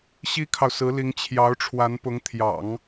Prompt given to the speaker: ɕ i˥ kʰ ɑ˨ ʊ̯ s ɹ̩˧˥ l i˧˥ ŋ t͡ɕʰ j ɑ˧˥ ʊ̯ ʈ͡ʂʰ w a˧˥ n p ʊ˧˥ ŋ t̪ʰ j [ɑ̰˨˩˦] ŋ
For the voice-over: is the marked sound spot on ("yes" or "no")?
yes